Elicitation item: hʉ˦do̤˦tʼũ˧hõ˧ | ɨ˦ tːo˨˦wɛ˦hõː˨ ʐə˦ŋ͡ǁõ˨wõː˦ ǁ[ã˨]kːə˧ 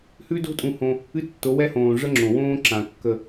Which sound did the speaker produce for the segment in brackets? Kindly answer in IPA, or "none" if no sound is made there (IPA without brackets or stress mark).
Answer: ã˨